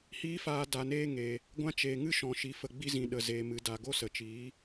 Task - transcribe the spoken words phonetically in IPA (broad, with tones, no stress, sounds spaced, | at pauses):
h iː˦ f aː˧ d a˨ n eː˧ ŋ e˨ | ɡʷ ã˧ t͡ʃ eː˨ ŋ ɨ˦ ʃ ɔ̃˨ ʃ i˨ f ə˨ ɡ͡b i˧ z ĩ˨ ɗ ə˨ z eː˨ m ɨ˨ d a˨ ɡ o˦ s ə˨ t͡ʃ iː˨˦